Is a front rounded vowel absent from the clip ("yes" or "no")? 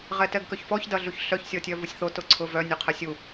no